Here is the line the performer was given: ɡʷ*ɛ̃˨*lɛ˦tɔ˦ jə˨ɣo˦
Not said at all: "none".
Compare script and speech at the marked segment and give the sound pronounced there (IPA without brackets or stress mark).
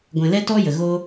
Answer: ɛ̃˨